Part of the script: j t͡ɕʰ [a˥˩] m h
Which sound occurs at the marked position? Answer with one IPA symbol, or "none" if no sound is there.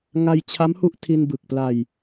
a˦˥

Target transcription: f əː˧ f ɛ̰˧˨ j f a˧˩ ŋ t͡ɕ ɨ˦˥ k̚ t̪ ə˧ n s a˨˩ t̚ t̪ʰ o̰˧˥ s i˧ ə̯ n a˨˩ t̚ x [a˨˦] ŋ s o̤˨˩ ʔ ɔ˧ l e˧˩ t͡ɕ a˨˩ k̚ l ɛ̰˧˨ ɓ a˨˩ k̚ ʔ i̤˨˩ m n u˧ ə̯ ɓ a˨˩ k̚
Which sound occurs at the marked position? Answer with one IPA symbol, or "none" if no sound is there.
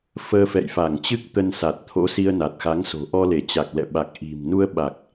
a˨˦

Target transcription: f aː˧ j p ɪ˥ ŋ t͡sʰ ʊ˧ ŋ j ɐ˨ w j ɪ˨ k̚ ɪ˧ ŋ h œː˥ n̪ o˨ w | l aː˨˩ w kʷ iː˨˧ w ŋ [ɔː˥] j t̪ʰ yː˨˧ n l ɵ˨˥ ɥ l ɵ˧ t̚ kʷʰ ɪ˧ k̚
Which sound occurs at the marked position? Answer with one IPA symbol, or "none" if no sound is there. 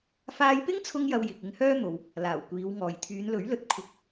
ɔː˨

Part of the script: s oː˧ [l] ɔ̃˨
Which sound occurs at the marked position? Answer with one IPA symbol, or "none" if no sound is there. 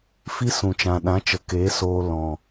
l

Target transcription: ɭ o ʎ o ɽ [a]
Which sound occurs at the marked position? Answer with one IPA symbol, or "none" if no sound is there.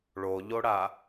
a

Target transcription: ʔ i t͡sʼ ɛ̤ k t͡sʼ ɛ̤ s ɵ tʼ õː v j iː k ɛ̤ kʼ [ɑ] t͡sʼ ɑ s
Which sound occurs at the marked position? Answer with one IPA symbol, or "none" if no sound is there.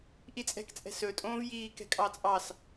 ɑ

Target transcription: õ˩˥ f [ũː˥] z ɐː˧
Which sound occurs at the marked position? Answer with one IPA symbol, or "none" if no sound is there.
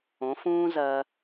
ũː˥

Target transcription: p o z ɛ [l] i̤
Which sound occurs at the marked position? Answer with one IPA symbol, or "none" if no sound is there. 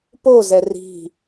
r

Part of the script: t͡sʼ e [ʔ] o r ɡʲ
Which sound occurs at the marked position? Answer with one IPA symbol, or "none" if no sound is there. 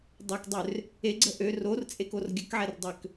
k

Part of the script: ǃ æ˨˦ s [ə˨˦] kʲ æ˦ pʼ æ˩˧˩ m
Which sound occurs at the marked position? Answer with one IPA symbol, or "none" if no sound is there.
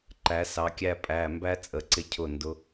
ɑ˨˦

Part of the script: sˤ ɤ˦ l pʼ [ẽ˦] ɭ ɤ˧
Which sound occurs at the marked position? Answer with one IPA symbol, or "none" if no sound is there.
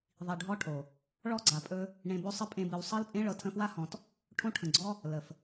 ẽ˦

